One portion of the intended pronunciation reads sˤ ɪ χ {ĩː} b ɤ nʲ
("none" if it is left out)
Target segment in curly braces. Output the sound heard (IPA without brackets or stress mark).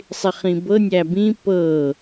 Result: ĩ